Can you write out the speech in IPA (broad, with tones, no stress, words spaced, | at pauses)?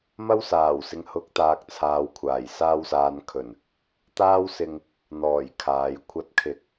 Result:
mɐ˥wsaː˨˩wsɪ˨ŋ hʊ˨˥k̚t̪aː˨k̚t͡sʰaː˨wkʷʰaː˨˩j saː˧wsaː˨nkʰɵ˨˩n | t̪aː˥wsɪ˧ŋ | n̪ɔː˨˩j kʰaː˨j kʷʰɐ˨˥t̚kʰɪ˨˥k̚